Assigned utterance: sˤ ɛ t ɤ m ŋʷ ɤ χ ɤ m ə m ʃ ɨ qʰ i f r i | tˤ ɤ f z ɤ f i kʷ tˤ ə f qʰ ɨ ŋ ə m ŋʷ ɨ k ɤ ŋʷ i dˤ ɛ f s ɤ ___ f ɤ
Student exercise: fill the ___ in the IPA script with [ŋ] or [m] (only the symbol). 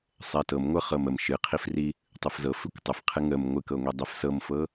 m